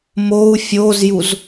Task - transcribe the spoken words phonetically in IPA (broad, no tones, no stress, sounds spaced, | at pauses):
m o u̯ fʲ o z j u z